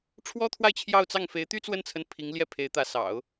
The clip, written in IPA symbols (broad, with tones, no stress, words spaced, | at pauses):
ʈ͡ʂʰwɔ˥t̪ʰwa˥˧ɪ̯ t͡ɕʰjɑ˥˧ʊ̯t͡sɑ˥˩ŋ fe˧˥ɪ̯t̪y˥t͡swə˥˩nt͡sʰə˧˥n pʰi˧˥ŋ ljɛ˥˩pʰe˧˥ɪ̯t̪ä˧˥sɑ̰˨˩˦ʊ̯